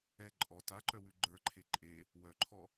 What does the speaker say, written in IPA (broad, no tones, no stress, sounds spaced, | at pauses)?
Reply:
ɛ ǃʼ ɔ t a ǃ œ w ʉ ɡ͡ǃ ə˞ ǃʰ e ǃʼ e | w œ ǃʰ ɔ